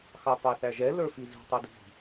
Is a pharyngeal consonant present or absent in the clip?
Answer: absent